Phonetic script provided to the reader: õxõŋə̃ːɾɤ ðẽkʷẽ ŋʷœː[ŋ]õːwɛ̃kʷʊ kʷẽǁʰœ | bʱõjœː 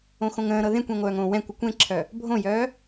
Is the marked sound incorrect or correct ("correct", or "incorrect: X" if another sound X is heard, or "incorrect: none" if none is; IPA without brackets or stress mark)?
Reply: correct